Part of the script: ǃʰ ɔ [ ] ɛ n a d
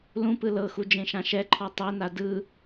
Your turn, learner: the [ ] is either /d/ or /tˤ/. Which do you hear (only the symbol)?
tˤ